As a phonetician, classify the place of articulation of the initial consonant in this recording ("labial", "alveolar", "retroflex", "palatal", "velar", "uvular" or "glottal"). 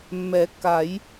labial